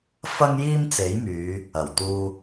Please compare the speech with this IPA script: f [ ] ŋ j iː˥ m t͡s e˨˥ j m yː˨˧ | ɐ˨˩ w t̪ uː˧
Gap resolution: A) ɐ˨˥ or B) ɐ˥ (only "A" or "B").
B